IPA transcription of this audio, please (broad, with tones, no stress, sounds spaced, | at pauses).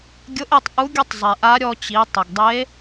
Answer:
ɡʲ ʊ˧˥ ʔ e˧ tˤ ʔ u˧˥ ɡʲ ʊ˥ tˤ zˤ e˩ ʔ a˧˥ ɾʲ ɔ˧ t͡ɕ i˩˧ tˤ ɪ˩ ɡ dˤ e˧˥